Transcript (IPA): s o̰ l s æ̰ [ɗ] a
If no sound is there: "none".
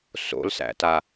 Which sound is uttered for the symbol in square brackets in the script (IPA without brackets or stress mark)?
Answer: t